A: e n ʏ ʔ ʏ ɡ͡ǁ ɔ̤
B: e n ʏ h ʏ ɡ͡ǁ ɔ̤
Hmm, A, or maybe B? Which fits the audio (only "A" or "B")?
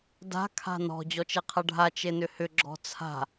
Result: B